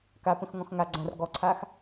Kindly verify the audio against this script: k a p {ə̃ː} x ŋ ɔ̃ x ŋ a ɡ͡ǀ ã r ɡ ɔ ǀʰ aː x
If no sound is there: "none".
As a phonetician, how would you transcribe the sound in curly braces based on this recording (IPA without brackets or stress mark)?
ə̃